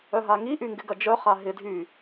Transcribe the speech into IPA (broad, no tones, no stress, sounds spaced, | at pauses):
œ ɦ a ŋ i ʔ y ŋ ɡ ɪ ɡ ɐ d͡ʒ œ χ a ɦ ɪ dʱ y